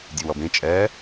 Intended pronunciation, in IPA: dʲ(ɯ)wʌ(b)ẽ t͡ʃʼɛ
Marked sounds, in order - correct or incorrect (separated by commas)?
correct, correct